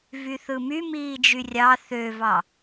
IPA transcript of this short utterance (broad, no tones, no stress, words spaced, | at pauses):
vyθɯmy miːd͡ʒyrʲɑ θøvɑ